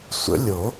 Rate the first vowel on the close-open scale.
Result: mid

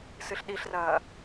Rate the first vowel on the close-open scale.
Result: close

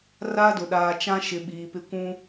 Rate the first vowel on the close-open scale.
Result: open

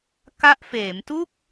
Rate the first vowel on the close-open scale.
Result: open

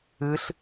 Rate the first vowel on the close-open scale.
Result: close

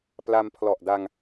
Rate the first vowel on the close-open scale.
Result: open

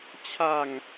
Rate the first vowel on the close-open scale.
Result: open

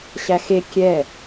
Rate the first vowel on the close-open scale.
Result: open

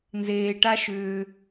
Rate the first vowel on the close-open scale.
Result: mid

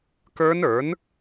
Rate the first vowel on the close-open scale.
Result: mid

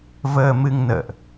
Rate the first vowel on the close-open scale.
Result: mid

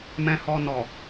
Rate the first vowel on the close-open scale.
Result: mid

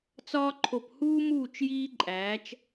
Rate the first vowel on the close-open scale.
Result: open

